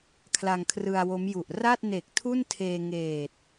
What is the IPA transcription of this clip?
kʰ l a˧ ŋ kʰ r ɯ˧ a̯ w o˦˥ m j u˨˩ ʔ r a˥˩ t̚ n e˨˩ k̚ tʰ u˥˩ n tʰ eː˧ ŋ eː˨˩ t̚

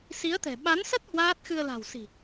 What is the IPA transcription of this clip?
s i˨˦ ə̯ t̪ ɛ̤˨˩ ɓ a˨˦ n s ə˦˥ t̚ h w aː˦˥ t̚ x ɨ˧ ə̯ l a̤˨˩ w s i̤˨˩

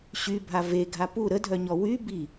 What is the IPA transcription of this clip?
ɕ y bʱ a v e ɡʱ a p u ɾ ə dʱ œ ɲ ɔ w y b i

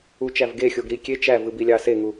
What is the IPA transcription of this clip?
u t͡ʃ æ v ɡ e xʲ o ɡ ɾ i kʲ e t͡ʃ æ v ɯ b i lʲ ɑ s e ŋ u

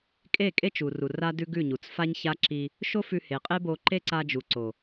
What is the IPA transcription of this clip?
kʼ e˦˨ kʼ e˦ t͡ʃ u˨ r u˨ r a˦ d ʉ˦ ɡ ʉ˦˨ ɲ u˨ t͡s f a˦ ɲ ç a˦ ǁ i˧ | ʃ o˦ f ʉ˧ h e˨ qʼ e˦ b o˧ ǃ e˦ ǀ a˧ d͡ʒ u˨ ǀ o˨

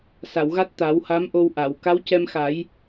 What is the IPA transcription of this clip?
s a˨˩˨ w ɣ a˦˥ t̚ t̪ a˨˩˦ w h a˧˥ m ʔ o˧ w ʔ a˨˩˨ w k a˧˥ w c ɛ˧ m x a˨˩˦ j

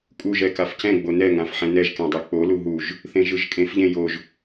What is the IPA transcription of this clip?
kʼ u ʒ ɛ k a f c ɛ̃ ɡ͡b o n ɛ ŋ ã f ħ ɛ̃ n ɛ ʒ k ɛ̃ dˤ e k͡p o l u ɦ u ʒ | θ ẽ ʒ ɯ ʒ kʼ ẽ f ʎ ẽ j o ʒ

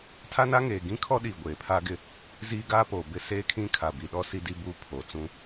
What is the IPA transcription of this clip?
tʰ a˦ n a˦ ŋ eː˨ ɡ ĩ˦ kʰ ɔ˦ ɗ iː˨ ɡʷ eː˨ pʰ aː˦ ɡ ɪ˦ | z iː˦ ɡ aː˦ p oː˨ b ɪ˦ s eː˦ kʰ ĩ˦ kʰ a˨ b i˨ ɗ ɔ˦ s i˦ d i˦ b uː˦ pʰ oː˨ t͡s ũ˦

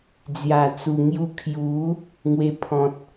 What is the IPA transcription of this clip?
d͡z j a˨˩ t͡s u˨˩ ŋ j u˧ kʰ j u˨˦ | ŋ w e˧ pʰ ɔ̃˨ t̚

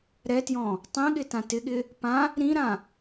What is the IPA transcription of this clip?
ɾ ɛ t j ɔ̃ | tˤ ẽ ɠ ɪ t ã t ɪ ɠ ɪ | p ã | ɾ ĩ ɾ ã

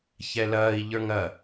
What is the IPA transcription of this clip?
ç ɛ l ɐː i̯ ʎ ə˞ ŋ ɐ

